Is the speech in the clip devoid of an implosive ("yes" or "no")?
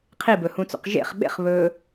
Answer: no